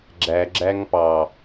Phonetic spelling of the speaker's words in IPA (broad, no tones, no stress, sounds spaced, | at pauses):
ɡ͡ǁ æ ɡ͡ǁ æ ŋ p ɑ